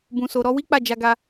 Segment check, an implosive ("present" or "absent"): absent